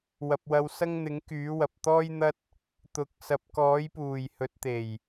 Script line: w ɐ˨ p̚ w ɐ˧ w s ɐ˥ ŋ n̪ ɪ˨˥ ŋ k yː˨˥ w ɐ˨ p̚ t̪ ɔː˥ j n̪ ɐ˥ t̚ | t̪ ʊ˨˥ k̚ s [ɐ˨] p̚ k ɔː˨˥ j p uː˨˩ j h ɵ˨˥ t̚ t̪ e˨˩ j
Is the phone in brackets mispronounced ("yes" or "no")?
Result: no